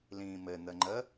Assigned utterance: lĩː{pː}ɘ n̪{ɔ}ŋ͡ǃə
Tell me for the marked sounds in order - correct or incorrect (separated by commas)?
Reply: incorrect, incorrect